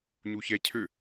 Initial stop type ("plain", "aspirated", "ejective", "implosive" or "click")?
aspirated